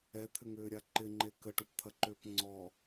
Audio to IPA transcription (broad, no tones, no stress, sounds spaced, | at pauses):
ɛ t̪ʰ ʏ ŋ ʏː ɾʲ a ǃ ɪ ŋ͡ǃ e k ə ʈ u p t̪ʰ ɐ ǃ ʏː p ŋ͡ǀ ɔ